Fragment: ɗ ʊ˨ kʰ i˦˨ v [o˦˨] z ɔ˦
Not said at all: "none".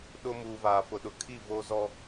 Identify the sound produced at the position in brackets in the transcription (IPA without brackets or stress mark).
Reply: o˦